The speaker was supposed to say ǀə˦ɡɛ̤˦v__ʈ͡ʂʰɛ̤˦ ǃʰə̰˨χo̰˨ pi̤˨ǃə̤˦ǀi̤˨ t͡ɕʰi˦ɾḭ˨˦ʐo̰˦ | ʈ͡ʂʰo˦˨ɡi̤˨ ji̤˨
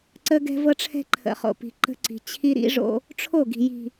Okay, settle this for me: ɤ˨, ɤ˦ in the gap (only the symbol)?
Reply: ɤ˦